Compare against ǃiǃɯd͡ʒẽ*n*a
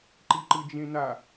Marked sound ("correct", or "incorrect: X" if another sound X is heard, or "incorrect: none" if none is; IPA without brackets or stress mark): correct